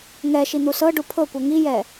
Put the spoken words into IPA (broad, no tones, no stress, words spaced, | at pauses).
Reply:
ŋɛʃi n̪usɤɖu pʰɤkʷɤ ŋijɛ